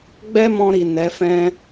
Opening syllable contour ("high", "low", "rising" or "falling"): high